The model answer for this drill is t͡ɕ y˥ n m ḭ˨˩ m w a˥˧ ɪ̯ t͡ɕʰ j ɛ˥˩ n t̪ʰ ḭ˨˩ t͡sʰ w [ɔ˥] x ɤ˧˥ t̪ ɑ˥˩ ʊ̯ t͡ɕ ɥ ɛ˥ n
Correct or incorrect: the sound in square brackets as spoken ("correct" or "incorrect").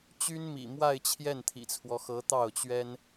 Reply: incorrect